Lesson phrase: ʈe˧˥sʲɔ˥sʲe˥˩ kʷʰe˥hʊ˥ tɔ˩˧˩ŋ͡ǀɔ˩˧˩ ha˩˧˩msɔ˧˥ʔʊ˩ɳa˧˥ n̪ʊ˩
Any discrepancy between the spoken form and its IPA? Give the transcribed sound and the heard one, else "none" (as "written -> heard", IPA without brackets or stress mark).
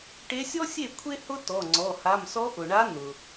none